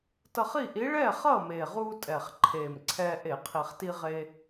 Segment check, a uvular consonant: present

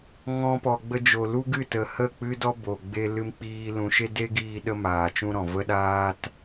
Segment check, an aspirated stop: absent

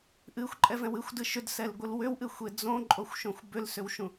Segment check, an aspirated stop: absent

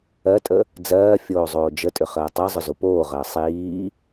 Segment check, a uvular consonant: present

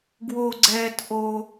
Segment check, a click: present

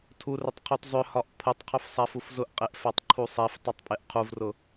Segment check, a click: present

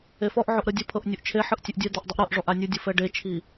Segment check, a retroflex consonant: present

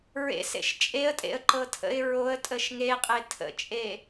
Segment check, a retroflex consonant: absent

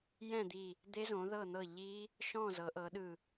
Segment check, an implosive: present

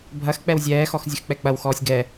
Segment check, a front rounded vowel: absent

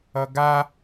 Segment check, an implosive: absent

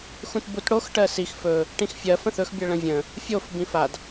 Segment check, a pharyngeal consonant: absent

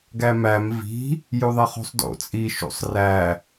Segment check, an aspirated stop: absent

